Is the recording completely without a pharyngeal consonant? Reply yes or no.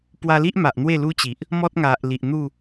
yes